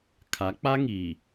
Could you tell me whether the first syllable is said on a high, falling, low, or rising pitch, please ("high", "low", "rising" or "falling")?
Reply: rising